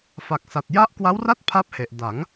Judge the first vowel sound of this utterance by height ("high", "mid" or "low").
low